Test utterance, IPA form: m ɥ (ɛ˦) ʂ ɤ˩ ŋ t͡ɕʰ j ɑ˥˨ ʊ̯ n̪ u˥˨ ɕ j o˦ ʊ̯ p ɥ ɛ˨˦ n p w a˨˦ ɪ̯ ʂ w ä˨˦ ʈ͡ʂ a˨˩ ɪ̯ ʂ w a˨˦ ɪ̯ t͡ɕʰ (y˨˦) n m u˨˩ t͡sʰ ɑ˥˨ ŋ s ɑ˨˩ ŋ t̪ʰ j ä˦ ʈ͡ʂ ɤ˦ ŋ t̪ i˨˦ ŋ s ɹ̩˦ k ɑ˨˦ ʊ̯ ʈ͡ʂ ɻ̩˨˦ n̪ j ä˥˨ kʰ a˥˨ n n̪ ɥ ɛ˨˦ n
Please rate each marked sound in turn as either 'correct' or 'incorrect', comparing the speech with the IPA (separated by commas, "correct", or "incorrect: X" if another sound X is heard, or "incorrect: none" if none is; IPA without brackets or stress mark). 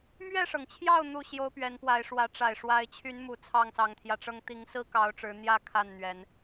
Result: incorrect: ɛ˥˨, correct